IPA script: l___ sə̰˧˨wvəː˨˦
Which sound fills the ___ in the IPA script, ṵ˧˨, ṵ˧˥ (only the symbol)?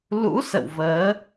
ṵ˧˥